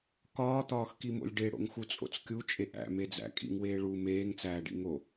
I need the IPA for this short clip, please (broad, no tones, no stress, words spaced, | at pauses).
kɒːt̪ɒːxkimo̰lʲ ɖeɽo̰ŋxut͡sʼo̰t͡s kʲut͡ʃʼeʔ æ̰med͡zæ̰ kʼḭŋweː ɭu meːŋt͡sæːɖḭ ŋo